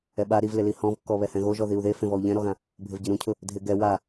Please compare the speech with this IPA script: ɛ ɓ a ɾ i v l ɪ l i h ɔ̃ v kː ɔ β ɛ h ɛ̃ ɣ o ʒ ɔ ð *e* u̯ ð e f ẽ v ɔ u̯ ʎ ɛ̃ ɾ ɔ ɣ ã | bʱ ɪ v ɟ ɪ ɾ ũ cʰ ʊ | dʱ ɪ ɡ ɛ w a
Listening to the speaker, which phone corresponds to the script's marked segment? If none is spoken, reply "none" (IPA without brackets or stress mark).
i